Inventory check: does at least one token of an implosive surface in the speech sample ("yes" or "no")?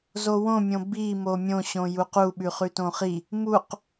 yes